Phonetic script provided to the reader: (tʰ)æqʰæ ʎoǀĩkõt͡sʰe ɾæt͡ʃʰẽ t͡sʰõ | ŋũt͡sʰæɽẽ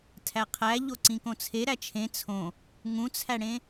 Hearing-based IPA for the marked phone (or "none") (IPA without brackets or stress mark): tʰ